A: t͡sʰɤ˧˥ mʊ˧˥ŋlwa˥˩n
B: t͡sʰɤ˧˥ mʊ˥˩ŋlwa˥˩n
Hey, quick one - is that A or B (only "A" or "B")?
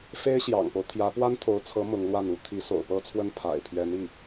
A